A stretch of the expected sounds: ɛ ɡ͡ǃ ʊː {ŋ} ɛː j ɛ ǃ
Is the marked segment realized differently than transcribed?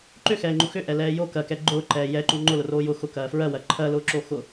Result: yes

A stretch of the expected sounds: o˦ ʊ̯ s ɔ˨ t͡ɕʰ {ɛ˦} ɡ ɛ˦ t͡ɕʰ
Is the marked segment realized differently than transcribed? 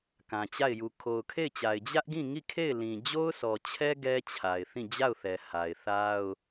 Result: no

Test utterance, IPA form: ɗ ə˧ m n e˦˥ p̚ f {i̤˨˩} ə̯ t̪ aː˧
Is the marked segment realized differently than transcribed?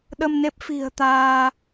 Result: no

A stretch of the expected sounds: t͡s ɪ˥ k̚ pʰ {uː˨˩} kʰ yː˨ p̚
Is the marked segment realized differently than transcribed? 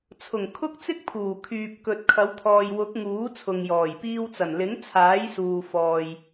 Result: no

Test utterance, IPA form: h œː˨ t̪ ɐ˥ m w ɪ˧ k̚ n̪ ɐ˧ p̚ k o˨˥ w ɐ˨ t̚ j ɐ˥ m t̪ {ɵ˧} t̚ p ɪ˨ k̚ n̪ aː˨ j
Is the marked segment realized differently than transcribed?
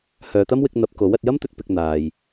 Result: yes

